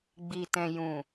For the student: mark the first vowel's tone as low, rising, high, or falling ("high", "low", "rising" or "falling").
low